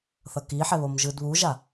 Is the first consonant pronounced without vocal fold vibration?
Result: yes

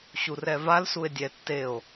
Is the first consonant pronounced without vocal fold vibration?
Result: yes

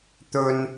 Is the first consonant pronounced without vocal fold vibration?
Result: yes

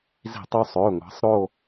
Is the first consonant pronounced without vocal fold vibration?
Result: no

